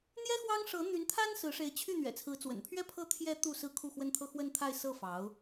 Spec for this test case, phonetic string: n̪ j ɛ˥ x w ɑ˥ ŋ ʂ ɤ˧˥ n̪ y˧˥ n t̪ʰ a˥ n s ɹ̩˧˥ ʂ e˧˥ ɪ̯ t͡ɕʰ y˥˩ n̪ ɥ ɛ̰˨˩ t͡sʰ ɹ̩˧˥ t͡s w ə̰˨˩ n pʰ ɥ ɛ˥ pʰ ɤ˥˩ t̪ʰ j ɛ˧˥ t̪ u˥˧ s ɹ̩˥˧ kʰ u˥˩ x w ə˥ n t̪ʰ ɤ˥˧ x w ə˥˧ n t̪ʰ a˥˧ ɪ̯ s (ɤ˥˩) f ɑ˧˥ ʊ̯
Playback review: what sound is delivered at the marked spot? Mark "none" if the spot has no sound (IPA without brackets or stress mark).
ɤ˥˩